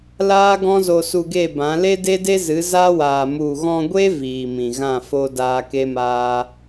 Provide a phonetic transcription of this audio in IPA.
l aː˦ ɡ ɔ̃˦ z o˧ s u˧ ɡ e˦˨ b ã˨˦ l e˦ d e˦ d e˦ z ɨ˨˦ z a˦ w aː˨ m u˨ ɣ ɔ̃˧ ɡʷ e˦ v iː˨ m ĩ˨ ɣ ã˦˨ f o˧ d aː˧ k e˦ m aː˦

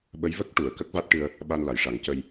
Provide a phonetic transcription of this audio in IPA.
ɓ ə˧˥ j v ə˦˥ k̚ ʈ u˨˩˨ ə̯ k ə˦˥ k̚ v a˦˥ t̚ ʈ ɨ˧ ə̯ | ɓ a˧ n l a˨˩˨ j ʂ a˨˩˦ ŋ c ə˧ j

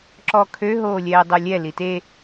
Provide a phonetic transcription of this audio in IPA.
ǁ ɔ kʰ ø ɦ oː lʲ ɛː dˤ o lʲ ɛ l i t e

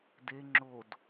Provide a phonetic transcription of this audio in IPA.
d e ŋ͡ǁ o d

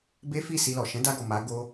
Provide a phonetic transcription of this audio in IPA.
b e˦ f i˦˨ s i˧ l ɔ˨ ʃ ɛ̃˨˦ d a˧ ɡ ɔ˨ m a˨˦ ɡ o˧

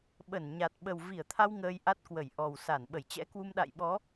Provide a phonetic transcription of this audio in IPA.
ɓ ə˧˩ n ɲ a˨˩ t̚ ɓ ə˨˩ w v i˧˩ ə̯ t̪ʰ a˧ w ŋ əː˧ j ʔ a˦˥ t̚ k w ə˧˩ j ʔ ɔ˨˩ w s a˧˩ n ɓ ə˧˩ j t͡ɕ ɛ̰˧˥ k w u˧ m ɗ a̰˧˨ j ɓ ɔ˨˦

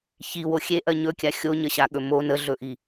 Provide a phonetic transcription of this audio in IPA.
ç i w o xʲ e ʔ ɜ ɲ ɵ kʲ a xʲ o ɲ ə ɕ a ɠ ɵ m o n ə ɮ ɵ ʔ i

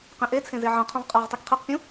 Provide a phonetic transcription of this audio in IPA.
q ẽ ʔ e t͡sʰ ẽ z e ʕ ɐ̃ qʰ õ ʁ qʼ a ʁ tˤ i k qʰ e q pʲ ũ

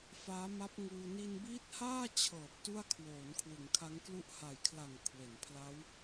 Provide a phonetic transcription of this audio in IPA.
f aː˦˥ m a˦˥ p̚ ŋ uː˧ n i˧ n b iː˦˥ t̚ h aː˥˩ t͡ɕʰ ɤː˨˩ p̚ t u˥˩ a̯ kʰ w oː˩˦ n kʰ w ɯ˩˦ ŋ kʰ a˦˥ ŋ k l u˥˩ ʔ h a˨˩ j kʰ l a˨˩ ŋ kʰ w e˩˦ n pʰ l a˦˥ w

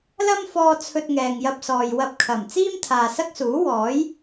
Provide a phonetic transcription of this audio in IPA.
l ɐ˥ m f ɔː˧ t͡sʰ ɵ˧ t̚ ŋ ɛː˨ ŋ j ɐ˧ p̚ s ɔː˨ j w ɐ˧ p̚ kʰ ɐ˨˩ m t͡s iː˥ m t̪ʰ aː˨ s ɐ˥ k̚ s uː˨˥ w ɔː˨˥ j

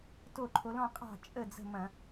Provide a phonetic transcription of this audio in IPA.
t o˥˩ ǃʰ o˨˥ l ɔ̃˥˧ qʼ ɑ̤˥˩ t͡ʃʼ ə˥˩ d͡z ə̤˥˩ m ɐ̃˧˩˧

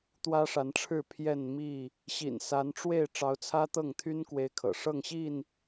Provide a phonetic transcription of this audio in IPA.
t̪ w ä˦ ʂ a˨˦ n ʈ͡ʂʰ ɻ̩˥˨ pʰ j ɛ˥˨ n m i˥˨ | ɕ ḭ˨˩ n s a˨˦ n ʈ͡ʂ w e˥˨ ɪ̯ ʈ͡ʂ ɑ˨˦ ʊ̯ t͡sʰ ä˦ t̪ ɤ˥˨ ŋ t̪ʰ y˦ n k w e˦ ɪ̯ kʰ ɤ̰˨˩ ʂ ɤ˥˨ ŋ ɕ i˥˨ n

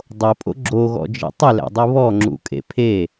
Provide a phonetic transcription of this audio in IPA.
dˤ o pʼ o̰ ɡ͡ǁ o ɣ ɔ̰ d͡ʒ ḛ tˤ ɪ l æ̰ dˤ u β ɔ ŋ͡ǁ ṵ kʼ ḛ pʰ e

